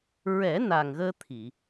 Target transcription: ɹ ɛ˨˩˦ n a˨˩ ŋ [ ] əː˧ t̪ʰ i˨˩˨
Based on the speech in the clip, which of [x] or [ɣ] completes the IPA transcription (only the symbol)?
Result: ɣ